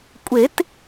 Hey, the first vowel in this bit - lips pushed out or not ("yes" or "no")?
no